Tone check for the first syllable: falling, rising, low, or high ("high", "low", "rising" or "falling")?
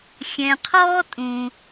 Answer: low